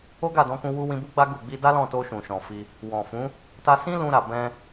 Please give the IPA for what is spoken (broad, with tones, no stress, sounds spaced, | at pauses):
o˦ ɡ a˦˨ d ɔ̃˧ k ũ˧ w u˧ w ĩ˧ b u˦ ɡ͡b a˦ ɡ u˦˨ ɡ͡b i˧ d a˦ l ɔ̃˦˨ t o˧ ʃ ũ˨ ʃ ɔ̃˨ f i˧ | w ɔ̃˨ f ũ˨˦ | t a˧ s ĩ˦ l ũ˧ ɾ a˨ b ɛ̃˧